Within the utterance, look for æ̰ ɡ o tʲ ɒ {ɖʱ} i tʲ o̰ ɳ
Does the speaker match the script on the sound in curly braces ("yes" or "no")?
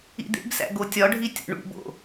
yes